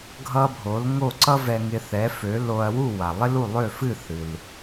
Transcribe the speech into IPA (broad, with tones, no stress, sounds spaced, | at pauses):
ɡʱ ʌ˧ bʱ o˩˥ l ŋ o˥˩ ǀ ʌ˥ v ɛ˧ ŋ ɪ˧ θ ɛ˩˥ f ø˩˥ l o˧ ɐ̯ w u˥˩ w a˩ lˠ ɪ˥ l u˥˩ lˠ ø˥˩ f ɨ˥˩ θ ɨ˩ l